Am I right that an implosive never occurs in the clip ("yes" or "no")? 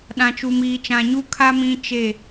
no